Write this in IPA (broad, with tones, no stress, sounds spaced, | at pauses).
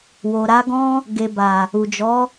w o˨ ɾ a˨˦ ɡ ɔ̃˦ | ɡ e˨ b a˨ | u˨ d͡ʒ ɔ˨˦